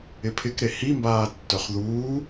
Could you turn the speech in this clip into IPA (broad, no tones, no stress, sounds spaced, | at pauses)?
ɪ pʰ ɪ k ɾ e h i m b aː tː œ χ ð uː